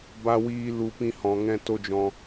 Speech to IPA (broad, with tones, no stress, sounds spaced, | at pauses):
b a˧ w iː˧ l u˧ p ĩ˧ h ɔ̃˨ ŋ ɛ̃˧ t o˧ d͡ʒ ɔ̃˧